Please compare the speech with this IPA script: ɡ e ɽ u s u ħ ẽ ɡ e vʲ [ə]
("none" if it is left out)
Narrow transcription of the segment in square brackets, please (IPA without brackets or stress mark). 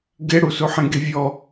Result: ɔ